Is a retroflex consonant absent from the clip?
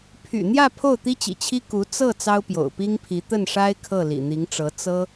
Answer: no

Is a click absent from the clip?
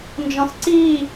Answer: no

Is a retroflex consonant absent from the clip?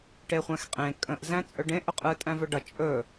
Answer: no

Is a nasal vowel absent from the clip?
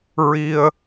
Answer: yes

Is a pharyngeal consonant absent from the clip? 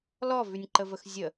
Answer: yes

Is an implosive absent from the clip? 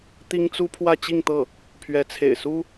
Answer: yes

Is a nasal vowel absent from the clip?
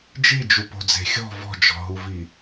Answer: yes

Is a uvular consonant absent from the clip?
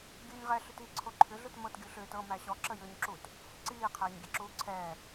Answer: no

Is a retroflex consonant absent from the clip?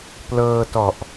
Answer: yes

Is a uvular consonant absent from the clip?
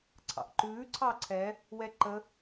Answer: yes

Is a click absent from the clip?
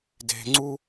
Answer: no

